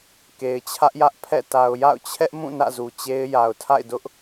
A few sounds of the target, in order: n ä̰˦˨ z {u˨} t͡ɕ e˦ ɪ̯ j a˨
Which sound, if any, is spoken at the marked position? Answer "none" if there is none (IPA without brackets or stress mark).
u˨